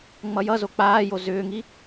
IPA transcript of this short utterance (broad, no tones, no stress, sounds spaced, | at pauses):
ŋ͡m ʌ j ʌ z o k͡p aː j o z ʏː ŋ i